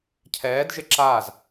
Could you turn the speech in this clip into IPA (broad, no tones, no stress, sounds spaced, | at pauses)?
cʰ ɛː d ʒ ɪ ǁ aː z